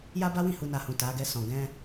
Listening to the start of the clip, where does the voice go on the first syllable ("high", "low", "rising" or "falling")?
high